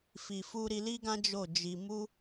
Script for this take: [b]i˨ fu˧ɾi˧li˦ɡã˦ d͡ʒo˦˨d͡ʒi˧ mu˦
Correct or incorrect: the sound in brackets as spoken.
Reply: incorrect: f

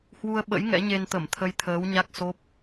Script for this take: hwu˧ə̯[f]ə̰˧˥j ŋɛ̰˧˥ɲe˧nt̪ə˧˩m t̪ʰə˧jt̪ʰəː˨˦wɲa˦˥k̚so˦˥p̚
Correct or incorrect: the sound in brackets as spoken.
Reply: incorrect: ɓ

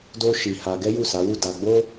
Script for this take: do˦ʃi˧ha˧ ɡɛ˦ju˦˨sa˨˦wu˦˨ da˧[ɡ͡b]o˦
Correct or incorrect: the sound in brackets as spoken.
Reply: correct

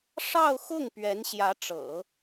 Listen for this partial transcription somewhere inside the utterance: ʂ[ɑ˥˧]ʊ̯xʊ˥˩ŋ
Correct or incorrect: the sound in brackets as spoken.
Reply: correct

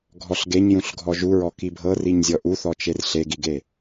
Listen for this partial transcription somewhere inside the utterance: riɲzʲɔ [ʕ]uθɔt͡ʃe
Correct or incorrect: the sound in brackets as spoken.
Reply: incorrect: ʔ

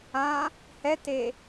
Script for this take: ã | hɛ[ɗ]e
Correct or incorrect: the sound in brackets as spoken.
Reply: incorrect: t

